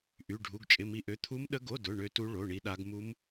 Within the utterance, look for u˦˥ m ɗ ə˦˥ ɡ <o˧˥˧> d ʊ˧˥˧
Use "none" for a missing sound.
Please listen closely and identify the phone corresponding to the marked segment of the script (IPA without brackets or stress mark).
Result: o˧˥˧